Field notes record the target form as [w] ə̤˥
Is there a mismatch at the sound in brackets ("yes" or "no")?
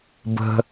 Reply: yes